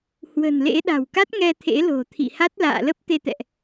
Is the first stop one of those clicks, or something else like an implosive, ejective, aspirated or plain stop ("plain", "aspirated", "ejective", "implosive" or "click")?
implosive